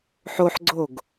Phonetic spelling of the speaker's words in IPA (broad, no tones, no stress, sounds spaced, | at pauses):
ħ o ħ ɡ͡ǀ o ɡ